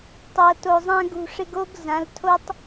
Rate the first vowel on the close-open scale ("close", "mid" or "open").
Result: mid